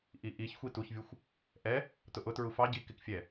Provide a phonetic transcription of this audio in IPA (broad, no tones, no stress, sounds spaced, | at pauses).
ʔ i ʔ i ç xʷ i t u ç vʲ u xʷ | ʔ ɛ | t ʊ ʔ ʊ t ɹ u f ɑ ɟ i k ɪ k fʲ ɛ